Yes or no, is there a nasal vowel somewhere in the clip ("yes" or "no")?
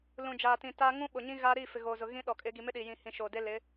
yes